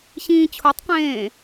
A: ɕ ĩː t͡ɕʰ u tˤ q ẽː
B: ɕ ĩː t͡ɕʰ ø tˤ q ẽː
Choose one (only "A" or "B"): A